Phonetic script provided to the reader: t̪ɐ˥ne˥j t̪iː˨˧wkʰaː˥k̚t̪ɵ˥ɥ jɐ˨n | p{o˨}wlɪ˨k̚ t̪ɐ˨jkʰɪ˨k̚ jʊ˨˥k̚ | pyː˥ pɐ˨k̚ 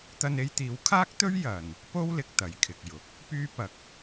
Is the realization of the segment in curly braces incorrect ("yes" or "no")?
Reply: yes